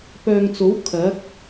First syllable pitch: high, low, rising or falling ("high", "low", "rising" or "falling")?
low